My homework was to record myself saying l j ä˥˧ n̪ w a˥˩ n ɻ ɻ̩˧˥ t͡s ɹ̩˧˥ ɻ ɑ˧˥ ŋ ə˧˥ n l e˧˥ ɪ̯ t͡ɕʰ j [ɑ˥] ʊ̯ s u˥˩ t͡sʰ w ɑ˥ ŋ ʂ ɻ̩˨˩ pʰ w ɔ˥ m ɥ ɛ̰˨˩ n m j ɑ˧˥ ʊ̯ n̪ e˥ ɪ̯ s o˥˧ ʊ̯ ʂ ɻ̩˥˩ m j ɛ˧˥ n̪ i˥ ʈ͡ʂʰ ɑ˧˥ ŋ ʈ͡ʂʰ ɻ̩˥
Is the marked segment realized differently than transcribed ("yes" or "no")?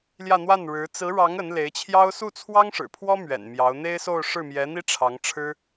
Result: no